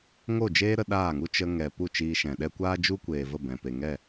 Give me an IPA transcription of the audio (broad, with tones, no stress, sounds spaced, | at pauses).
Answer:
ŋ o˦˨ d͡ʒ eː˦ ɾ ə˧ ɗ aː˦˨ ŋ u˦ t͡ʃ ə˧ ŋ ɛ˨ p u˦˨ t͡ʃ iː˧ ʃ ɛ̃˨ ɗ ɛ˧ kʷ aː˦ d͡ʒ u˦ kʷ eː˨ v ə˦˨ b ɛ̃˨ p e˨ ŋ ɛ˦˨